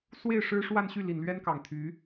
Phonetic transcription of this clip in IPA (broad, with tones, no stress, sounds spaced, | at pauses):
s w e˥˩ ɪ̯ ʂ ɻ̩˥ ʂ w a˥˧ n ɕ y˥˩ l i˨˩ n l ɥ ɛ˥ n k ɑ˨˩ ŋ t̪ʰ y˧˥